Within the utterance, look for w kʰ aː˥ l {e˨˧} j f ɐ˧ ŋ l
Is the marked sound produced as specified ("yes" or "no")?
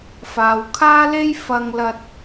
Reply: no